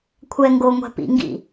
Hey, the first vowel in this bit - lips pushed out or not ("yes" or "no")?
no